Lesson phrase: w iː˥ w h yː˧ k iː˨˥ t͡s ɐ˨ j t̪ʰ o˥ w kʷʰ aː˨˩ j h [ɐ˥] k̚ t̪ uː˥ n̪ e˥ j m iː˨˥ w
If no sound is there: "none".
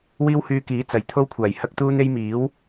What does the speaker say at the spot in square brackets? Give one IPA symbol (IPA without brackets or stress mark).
ɐ˥